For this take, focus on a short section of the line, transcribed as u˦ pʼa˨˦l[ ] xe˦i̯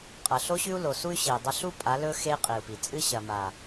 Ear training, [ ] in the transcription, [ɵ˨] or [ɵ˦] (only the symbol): ɵ˦